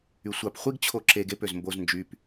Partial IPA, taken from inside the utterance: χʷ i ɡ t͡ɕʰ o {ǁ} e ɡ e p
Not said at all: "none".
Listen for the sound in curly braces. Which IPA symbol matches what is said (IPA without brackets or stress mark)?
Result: ǁ